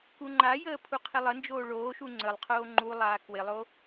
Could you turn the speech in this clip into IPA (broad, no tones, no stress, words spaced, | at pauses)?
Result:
kuŋ͡ǃajəː pʰuqʰɪlˠənd͡ʒoː ɭoːʃu ŋ͡ǀəlˠ qʰoːŋ͡ǃulˠaː kwɪlˠo